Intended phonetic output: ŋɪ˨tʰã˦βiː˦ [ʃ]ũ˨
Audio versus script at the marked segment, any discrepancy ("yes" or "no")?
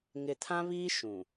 no